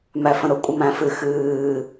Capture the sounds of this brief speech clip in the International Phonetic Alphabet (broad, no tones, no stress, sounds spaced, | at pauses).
m æ f ə̃ ɾ ʊ kʷʼ ə m æ̃ f ɨ x ɨː